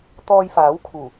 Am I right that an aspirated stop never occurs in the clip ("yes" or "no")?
no